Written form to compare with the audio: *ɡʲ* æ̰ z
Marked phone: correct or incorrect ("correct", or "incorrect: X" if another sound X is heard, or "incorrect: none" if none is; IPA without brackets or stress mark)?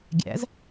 correct